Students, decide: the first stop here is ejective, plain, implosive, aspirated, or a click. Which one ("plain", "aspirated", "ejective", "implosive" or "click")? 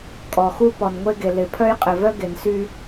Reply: ejective